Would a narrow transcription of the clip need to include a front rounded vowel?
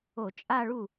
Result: no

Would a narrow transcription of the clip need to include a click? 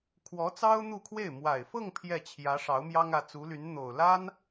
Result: no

